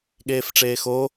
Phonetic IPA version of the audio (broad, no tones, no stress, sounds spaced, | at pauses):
ɠ eː f ʈ͡ʂ eː x o